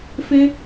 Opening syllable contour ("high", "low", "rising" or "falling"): high